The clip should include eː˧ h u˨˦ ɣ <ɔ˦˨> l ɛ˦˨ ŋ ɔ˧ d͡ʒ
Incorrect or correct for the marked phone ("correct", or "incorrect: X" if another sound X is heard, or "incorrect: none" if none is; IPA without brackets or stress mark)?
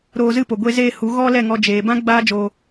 incorrect: ɔ˦